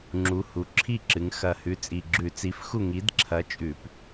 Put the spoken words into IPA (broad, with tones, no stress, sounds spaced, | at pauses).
ŋ͡ǁ u˩˧ h u˩˧ ǁʰ i˥˩ ǁ ɨ˩˧ ŋ x ɐ˨˩ h ʉ˩˥ t͡sʼ i˨˩ ɡ͡ǁ ʉ˧˩˧ t͡s i˩˥ f x u˥˩ ŋ i˩˥ d ǁʰ ɐ˩˥ t͡ʃʼ ʉ˧˩˧ p